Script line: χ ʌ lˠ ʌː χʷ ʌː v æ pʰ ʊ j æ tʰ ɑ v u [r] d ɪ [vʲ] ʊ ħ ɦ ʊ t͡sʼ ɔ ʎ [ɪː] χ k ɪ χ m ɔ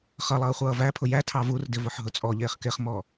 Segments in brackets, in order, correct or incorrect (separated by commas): correct, incorrect, correct